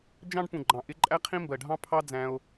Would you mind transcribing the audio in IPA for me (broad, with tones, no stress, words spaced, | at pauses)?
d͡ʒɑ̃˧ɖpũ˨ ɡ͡ǃɑ̃˨ʔɪ˧ ǃʼæ˧qʰĩ˧mbɜ˨ɖʱɑ̃˧ pʰɑ˦d͡zæ̃˧o̯